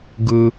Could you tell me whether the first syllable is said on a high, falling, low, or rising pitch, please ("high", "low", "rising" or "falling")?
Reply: low